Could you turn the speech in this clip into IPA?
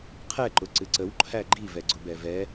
qʰ ɛ ǃ ʊ ǀ ɨ ǀ ə w ǃʰ æ ɡ͡ǃ i v ɛ ɡ͡ǀ ʊ b ɛ v ɛ

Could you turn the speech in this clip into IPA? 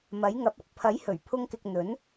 m ɐ˨˥ j ŋ ɐ˨˥ p̚ ɐ˨˥ k̚ pʰ ɐ˨˥ j h ɵ˨˩ ɥ pʰ ʊ˧ ŋ k ɪ˨ k̚ n̪ ɵ˨˥ n

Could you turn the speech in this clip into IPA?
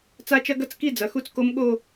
t͡s a˦˥ t͡ʃ ɐ˦˥ ɡ ɐ˥˧ t͡s k i˥˧ d͡z ɐ˩˧˩ x u˥˧ t͡s k o˦˥ m ɠ o˥˧

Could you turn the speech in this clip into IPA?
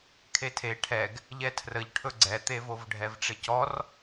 kʰ e tʰ e ʈʰ ɛ ɡ | ʎ ɛ tʰ r ə ʎ ʈʰ ɵ ɡ͡ǀ ɛ t̪ e v o v ɖʱ ɛ v ʈ͡ʂ ɪ c ɔ r

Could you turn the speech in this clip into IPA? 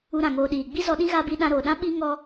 u˧ ɾ ã˨ ŋ oː˨ ɗ iː˨ ɡ͡b i˦ z ɔ˧ ɗ ĩ˦ ɣ a˦ b i˦ ɗ ã˧ ɾ oː˨ ɗ ã˦ ɓ i˦ ŋ ɔ˦

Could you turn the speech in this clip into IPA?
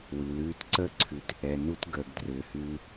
w ʉ˨ l ʉː˧ t ǀ əː˦ ǀʰ ʉ˨˦ t | ɛ˨ n u˦ t ɡ əː˨ ɡ d r ʏː˨ h ʉː˧

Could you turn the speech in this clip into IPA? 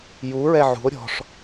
j u ɹ ɛ ʕ ṳ o̯ ɾʲ ɔ̤ ʂ

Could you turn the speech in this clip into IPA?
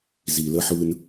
z i˨ l ə˧ ħ ɯ˧ n

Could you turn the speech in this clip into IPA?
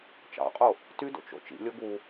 t͡ʃ ɑ̰ qʼ o | t y d o̰ t͡ʃ o̰ t͡ʃ ḭ lʲ o ɡ u

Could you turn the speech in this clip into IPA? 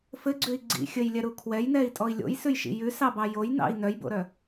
f ɘ ɡ͡ǀ ʉ i̯ ɡ͡ǀ ḭ xʲ ɘ j lʲ ɛ ɾ u kʰ w ɛ j n ɛ i̯ tʼ ɔ i̯ lʲ o̰ j s ʉ j ʃ ḭ j ʉ s ɑ b ɑ j o j n ɑ̰ i̯ n œ j b o̰ ɾ œ

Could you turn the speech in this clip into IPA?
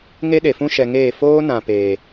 ŋ e˦ ɗ e˨ f ũ˦ ʃ ɛ˧ ŋ eː˦˨ f oː˦ n ã˨ p eː˨

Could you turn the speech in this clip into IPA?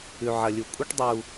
ʉ˨ ʕ ɐ˨ lʲ u˨ kʷʼ ɐ˦ ʈ dˤ uː˨

